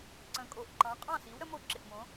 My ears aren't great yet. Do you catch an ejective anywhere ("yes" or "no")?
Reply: yes